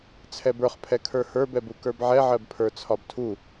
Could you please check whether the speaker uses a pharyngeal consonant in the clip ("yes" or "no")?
yes